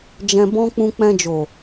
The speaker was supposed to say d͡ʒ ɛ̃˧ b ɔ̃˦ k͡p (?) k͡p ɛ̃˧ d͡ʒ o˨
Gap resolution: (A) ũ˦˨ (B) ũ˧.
B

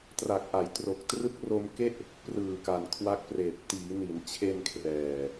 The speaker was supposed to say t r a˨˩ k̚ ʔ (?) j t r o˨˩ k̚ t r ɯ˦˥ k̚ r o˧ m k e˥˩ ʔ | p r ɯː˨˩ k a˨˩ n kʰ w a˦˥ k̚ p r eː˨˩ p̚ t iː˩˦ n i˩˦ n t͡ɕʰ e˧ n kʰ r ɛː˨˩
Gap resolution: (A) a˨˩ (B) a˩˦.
B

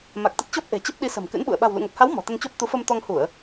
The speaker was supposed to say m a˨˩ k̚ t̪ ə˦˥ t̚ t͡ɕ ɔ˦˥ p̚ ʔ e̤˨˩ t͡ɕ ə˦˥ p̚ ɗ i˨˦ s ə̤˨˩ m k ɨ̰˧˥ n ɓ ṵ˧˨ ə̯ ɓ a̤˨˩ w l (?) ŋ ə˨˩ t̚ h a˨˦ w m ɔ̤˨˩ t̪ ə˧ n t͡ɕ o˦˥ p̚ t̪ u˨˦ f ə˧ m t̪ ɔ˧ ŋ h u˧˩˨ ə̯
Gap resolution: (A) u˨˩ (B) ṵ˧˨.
B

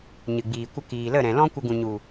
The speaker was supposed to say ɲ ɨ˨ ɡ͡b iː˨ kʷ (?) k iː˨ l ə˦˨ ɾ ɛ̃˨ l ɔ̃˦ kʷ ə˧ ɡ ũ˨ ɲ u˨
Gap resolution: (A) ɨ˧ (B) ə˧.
B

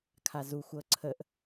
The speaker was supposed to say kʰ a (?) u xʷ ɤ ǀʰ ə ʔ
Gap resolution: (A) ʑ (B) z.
B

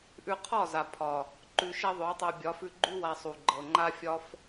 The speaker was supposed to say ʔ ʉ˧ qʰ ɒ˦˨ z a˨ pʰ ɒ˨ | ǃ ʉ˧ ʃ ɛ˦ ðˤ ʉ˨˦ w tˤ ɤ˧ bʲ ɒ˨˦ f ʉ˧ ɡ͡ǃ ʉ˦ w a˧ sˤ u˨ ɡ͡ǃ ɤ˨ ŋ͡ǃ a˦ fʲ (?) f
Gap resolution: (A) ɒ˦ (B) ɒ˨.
A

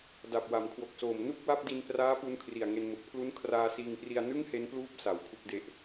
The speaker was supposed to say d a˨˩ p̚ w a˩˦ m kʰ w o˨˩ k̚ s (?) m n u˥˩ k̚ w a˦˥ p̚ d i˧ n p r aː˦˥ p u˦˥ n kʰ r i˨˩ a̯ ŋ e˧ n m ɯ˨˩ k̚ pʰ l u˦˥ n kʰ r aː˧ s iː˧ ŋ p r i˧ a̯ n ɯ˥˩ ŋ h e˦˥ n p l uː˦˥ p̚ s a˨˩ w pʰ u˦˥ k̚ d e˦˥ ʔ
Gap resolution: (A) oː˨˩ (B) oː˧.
A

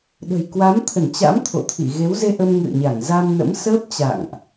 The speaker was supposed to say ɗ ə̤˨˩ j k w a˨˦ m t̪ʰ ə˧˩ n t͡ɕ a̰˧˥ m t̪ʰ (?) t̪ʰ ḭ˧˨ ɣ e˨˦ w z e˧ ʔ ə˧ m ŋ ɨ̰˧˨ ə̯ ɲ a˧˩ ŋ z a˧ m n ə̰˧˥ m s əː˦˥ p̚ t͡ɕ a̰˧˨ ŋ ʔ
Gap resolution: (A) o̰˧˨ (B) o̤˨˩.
A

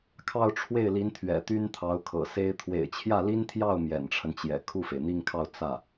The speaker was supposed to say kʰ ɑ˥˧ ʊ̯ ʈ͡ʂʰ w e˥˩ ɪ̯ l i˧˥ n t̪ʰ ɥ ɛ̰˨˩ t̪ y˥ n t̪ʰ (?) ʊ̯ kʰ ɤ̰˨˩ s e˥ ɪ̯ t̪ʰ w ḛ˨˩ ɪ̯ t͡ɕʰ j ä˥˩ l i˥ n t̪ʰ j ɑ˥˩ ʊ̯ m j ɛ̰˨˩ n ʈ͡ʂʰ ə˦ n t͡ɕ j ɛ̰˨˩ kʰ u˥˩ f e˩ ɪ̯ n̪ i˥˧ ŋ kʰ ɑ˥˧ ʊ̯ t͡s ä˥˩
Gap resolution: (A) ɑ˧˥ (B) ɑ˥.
A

